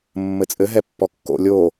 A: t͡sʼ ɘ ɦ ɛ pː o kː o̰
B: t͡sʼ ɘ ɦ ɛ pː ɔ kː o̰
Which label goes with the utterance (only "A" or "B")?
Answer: B